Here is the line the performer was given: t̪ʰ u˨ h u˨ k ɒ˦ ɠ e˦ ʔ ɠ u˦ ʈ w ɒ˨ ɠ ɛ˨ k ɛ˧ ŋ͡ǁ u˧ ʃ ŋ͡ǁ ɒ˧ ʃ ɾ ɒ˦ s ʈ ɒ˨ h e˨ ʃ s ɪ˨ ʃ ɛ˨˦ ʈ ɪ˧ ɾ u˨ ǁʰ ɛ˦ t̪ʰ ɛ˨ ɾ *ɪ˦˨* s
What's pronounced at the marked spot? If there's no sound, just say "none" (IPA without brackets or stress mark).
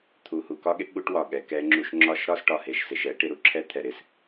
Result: ɪ˨